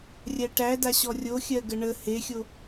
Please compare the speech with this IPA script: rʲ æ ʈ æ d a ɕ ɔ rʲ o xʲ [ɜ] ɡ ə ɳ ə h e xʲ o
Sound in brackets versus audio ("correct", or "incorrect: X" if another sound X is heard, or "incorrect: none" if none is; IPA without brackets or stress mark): correct